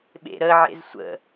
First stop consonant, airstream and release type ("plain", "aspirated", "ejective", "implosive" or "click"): implosive